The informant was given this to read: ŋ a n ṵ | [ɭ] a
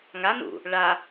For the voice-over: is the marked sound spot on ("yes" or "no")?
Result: yes